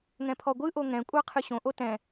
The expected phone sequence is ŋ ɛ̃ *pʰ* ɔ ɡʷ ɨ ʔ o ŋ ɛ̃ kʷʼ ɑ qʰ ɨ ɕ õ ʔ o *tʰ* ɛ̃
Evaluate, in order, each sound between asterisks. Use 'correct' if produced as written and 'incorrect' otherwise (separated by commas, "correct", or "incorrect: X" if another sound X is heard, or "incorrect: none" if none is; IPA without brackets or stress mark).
correct, incorrect: t